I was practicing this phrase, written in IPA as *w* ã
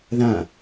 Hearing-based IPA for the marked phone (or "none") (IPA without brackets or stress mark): ð